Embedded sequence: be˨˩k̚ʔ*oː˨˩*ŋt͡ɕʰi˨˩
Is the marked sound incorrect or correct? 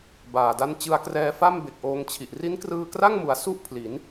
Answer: incorrect